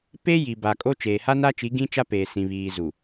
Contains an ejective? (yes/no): yes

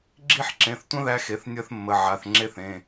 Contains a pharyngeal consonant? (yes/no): yes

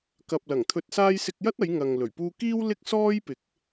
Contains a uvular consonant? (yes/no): no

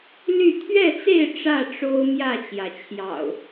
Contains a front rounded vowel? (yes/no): yes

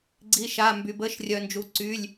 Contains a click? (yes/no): yes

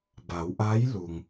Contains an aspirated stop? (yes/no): no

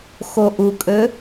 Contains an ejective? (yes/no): yes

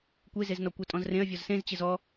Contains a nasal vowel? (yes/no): yes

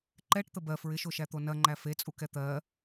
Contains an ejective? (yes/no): yes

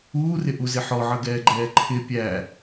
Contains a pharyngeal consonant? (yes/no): yes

